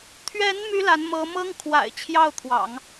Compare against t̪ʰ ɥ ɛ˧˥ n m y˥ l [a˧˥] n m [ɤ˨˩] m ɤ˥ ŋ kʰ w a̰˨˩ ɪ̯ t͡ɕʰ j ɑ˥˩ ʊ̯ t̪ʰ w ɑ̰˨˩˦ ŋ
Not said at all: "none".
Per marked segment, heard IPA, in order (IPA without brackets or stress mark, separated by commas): a˧˥, ɤ˧˥